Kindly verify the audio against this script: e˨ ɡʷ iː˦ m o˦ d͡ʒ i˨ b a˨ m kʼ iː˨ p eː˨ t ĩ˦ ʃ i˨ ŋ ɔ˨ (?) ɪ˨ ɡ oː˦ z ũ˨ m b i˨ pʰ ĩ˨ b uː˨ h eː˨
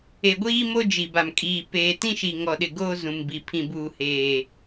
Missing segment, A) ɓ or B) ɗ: B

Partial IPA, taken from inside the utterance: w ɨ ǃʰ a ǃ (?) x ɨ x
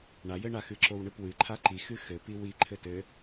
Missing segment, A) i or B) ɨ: A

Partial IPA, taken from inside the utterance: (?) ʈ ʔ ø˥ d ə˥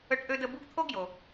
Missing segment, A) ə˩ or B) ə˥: B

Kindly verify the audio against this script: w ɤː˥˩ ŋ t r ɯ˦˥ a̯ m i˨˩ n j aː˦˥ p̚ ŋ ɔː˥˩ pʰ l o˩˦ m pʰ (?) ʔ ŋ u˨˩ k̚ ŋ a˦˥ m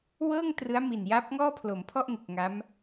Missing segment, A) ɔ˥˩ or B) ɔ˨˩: A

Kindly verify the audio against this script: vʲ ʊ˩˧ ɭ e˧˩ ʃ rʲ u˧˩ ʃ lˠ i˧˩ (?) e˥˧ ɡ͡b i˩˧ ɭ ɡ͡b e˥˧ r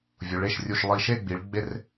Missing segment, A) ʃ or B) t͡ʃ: A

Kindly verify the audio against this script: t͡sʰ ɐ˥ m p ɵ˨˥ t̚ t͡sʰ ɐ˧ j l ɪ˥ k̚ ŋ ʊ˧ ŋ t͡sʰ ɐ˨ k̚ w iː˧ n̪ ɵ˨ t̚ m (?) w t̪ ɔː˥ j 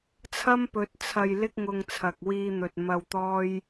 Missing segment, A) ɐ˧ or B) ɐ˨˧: A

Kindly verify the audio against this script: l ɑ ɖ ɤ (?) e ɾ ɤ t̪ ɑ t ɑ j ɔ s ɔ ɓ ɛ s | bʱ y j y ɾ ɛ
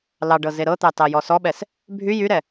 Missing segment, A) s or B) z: B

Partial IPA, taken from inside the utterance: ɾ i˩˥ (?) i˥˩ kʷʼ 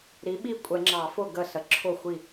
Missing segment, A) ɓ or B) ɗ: A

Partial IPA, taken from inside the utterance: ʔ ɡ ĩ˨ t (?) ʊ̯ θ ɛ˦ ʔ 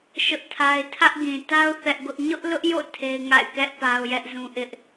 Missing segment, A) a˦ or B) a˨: A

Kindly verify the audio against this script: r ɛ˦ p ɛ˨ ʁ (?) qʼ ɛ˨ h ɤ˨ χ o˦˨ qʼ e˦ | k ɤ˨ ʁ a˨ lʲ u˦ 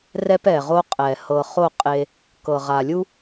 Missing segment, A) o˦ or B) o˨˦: A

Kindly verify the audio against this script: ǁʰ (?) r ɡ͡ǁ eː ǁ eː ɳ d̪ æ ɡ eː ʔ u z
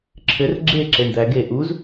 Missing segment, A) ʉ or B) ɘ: B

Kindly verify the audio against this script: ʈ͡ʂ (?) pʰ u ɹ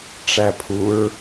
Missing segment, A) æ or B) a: A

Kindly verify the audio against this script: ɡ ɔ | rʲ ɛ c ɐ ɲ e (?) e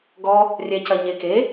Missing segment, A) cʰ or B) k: B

